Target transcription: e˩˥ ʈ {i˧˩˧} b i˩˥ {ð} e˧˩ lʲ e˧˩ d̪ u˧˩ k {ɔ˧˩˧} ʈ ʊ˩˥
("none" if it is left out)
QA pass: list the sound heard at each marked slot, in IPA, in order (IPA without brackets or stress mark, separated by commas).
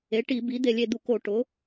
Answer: i˧˩˧, d̪, o˧˩˧